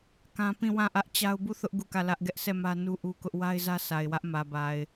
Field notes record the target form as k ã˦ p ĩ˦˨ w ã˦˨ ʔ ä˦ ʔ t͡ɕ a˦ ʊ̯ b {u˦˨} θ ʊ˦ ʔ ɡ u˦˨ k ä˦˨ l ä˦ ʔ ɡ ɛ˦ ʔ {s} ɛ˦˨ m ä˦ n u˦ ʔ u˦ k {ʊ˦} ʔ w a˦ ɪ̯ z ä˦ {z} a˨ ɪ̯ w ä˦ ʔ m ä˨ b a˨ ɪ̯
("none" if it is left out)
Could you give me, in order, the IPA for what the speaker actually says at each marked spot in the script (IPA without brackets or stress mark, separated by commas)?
u˦˨, s, ʊ˦, s